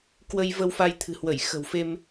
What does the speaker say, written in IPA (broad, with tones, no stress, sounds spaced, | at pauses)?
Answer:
k w ə˧ j v ə˧ w f a˧ j t̪ʰ ɨ̤˨˩ h w ə˧˩ j x ə̤˨˩ w f e˧ m